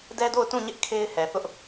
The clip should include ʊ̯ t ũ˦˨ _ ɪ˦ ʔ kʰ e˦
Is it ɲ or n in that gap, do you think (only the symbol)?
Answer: ɲ